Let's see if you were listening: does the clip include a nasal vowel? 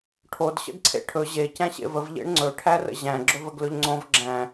yes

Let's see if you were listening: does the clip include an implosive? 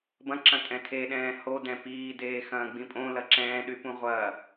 yes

